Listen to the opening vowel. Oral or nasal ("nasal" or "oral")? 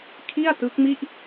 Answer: oral